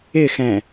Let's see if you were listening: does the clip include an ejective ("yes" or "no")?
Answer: no